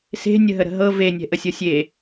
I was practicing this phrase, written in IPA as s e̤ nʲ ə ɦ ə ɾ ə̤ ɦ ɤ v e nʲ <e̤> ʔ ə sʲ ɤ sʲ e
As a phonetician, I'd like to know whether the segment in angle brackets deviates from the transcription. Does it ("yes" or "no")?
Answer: yes